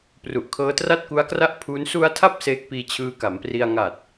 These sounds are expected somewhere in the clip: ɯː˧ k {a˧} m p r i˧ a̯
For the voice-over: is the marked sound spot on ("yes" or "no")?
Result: no